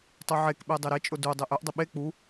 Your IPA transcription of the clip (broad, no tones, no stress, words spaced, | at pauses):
tˤuʕekɓe dˤeɾet͡ʃʼʊ du dˤeʔœʔdˤʊ ɓe k͡pu